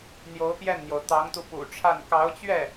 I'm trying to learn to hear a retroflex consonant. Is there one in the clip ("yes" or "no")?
yes